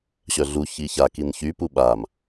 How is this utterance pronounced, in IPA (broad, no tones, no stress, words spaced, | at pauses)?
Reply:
ɕœɮu çiça kinçy puɓam